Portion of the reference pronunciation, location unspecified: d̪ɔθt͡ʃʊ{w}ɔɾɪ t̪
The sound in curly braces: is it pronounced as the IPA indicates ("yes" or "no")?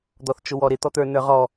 yes